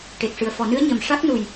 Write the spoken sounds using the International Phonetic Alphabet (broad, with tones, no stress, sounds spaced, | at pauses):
ʈ e˨˩ k̚ ʂ ɨ˨˩ ə̯ f ɔ˨˩˨ n ɨ˧˥ ə̯ ɲ ə˨˩ m ʂ a˦˥ k̚ n u˨˩ j